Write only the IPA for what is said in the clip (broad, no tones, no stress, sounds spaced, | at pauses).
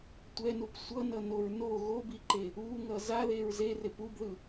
tʷ ɛ n u p sʷ ʌ n ʌ n o ɹ n o ɣ o b i ǃ e | u ŋ ʌ z a ð e ɹ z e r e p u b ð ɯ